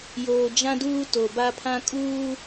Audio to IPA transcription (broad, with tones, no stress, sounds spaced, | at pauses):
j oː˨ d͡ʒ ã˦ d uː˦ t o˨ b a˦ pʰ ã˦ kʼ uː˦